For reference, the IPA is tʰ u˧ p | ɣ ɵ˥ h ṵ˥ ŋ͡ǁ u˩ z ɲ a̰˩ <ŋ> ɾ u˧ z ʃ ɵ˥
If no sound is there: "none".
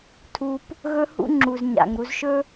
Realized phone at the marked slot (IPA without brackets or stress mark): ŋ